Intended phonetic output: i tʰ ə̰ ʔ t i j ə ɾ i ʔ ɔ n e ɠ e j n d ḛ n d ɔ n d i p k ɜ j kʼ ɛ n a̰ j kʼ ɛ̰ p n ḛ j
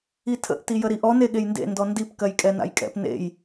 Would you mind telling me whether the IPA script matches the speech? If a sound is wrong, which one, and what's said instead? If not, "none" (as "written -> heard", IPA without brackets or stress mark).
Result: none